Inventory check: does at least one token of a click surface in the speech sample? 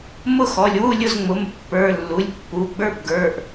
no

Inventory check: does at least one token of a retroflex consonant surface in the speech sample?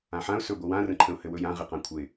no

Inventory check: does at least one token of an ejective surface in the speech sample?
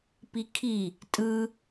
yes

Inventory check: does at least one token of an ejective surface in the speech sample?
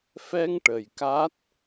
no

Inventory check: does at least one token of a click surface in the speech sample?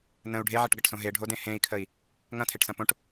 no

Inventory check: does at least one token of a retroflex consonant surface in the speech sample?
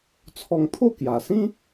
no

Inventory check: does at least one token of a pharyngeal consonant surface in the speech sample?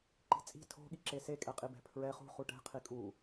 no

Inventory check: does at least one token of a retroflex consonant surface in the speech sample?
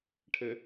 yes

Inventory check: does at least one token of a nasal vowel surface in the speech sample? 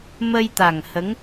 no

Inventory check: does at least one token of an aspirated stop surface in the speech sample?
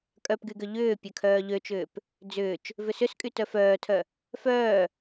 yes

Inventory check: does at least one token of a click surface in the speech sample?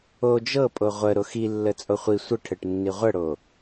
no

